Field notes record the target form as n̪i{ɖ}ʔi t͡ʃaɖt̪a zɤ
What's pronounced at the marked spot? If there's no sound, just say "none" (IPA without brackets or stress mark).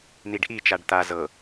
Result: ɖ